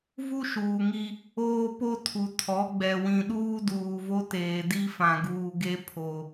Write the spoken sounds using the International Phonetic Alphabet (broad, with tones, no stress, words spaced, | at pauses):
vu˦ʃuː˨ŋi˦ | oː˦po˦tʰu˨ tʰɔ˨˦ɡ͡bɛ˨ wĩ˨ɗuː˦ duː˨vo˦teː˨ di˦fã˨ɡuː˨ ɡe˦ pʰo˦